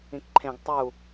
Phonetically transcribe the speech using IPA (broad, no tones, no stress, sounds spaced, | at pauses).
ĩ k ǃʰ ẽ ɡ tˤ u